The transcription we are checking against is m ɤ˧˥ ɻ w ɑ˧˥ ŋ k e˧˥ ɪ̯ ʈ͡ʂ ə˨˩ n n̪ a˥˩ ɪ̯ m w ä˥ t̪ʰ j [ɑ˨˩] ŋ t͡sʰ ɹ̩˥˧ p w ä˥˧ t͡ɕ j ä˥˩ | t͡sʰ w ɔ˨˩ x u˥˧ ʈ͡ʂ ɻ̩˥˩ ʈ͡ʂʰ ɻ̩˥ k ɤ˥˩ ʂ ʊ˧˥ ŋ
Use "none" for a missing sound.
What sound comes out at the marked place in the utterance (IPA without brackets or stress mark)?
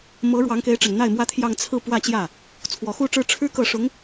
ɑ˥˧